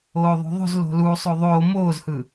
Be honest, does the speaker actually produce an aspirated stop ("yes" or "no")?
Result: no